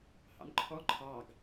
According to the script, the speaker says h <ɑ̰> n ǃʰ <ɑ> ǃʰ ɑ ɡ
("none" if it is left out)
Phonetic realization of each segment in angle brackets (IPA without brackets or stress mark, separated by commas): ɑ̰, ɔ